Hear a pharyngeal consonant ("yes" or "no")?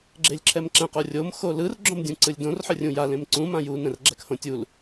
yes